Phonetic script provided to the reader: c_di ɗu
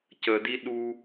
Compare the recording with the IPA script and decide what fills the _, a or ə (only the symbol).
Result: ə